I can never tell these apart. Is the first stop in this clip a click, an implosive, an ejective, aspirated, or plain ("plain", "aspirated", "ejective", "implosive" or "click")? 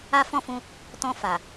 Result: plain